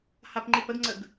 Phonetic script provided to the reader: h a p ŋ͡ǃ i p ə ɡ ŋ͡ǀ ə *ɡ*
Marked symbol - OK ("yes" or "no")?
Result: yes